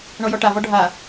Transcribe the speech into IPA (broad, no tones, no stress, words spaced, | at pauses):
ɳɔjɔʈavɔ ɖʱa